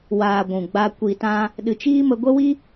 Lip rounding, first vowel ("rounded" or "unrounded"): unrounded